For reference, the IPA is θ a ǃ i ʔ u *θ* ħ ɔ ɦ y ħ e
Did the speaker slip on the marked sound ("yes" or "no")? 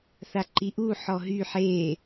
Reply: yes